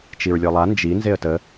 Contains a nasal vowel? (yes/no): no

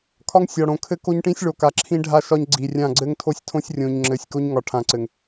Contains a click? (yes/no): yes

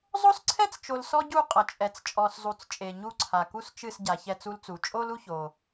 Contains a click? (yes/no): yes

